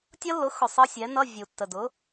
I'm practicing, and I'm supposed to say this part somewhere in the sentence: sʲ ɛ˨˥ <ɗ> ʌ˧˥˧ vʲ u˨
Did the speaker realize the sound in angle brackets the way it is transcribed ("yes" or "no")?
no